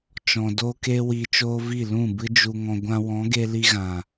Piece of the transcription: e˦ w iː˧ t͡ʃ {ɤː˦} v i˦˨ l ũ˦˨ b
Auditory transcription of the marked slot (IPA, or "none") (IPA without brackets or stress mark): oː˦